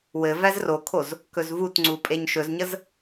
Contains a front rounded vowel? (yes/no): no